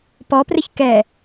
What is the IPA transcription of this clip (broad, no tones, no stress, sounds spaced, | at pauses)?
p ɔ p r ɪ ç k ɛ